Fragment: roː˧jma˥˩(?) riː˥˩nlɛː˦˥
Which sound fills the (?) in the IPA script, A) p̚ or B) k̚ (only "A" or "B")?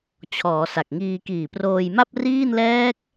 A